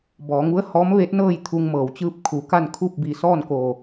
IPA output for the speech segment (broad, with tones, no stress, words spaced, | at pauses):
bɔː˩˧ŋu˧˥ə̯ hɔː˧˥mʋe˧˥t̚nɤː˥˨j t̪ʰu˧ŋmɤː˩wt͡ɕɯː˥˨p̚ kʰu˩ka˥˨n kʰu˥˨p̚bi˧˩sɔː˥˨nko˧˩